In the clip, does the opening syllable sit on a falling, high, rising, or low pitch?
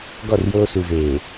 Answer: falling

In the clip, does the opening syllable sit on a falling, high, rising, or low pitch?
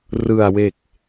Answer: low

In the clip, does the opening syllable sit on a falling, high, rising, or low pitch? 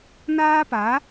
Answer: high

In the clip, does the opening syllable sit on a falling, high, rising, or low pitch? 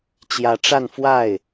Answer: rising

